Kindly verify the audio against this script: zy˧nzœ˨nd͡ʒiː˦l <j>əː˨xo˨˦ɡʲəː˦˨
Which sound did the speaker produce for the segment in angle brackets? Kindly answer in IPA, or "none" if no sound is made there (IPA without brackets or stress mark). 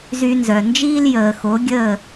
j